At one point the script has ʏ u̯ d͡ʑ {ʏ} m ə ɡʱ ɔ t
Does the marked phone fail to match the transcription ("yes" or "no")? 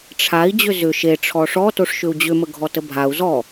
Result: no